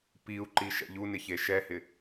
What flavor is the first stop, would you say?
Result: plain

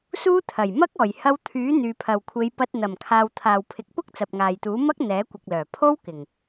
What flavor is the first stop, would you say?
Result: aspirated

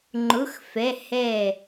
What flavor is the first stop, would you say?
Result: click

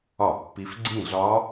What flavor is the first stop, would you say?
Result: plain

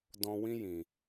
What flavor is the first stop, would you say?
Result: plain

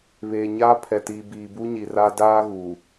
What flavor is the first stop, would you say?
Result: aspirated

